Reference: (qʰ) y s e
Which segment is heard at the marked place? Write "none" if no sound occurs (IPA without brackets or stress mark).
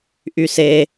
ʔ